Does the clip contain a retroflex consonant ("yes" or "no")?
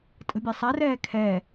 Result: no